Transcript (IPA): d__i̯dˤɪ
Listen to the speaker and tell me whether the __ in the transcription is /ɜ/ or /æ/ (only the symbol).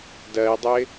ɜ